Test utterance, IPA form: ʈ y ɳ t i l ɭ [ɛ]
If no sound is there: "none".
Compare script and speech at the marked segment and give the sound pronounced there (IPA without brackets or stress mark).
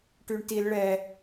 ɛ